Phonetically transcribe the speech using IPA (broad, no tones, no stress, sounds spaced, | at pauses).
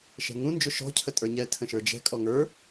ʃ ɛ̤ ŋ ũ n d͡ʒ ʊ ʃ ɔ̤ cʰ ə tʼ ə˞ ɲ ɛ tʰ ə̃ ʃ ə˞ d͡ʒ ɛ̤ kʼ ɔ ŋ ə˞